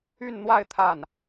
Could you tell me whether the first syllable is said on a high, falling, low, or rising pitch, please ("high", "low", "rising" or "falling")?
falling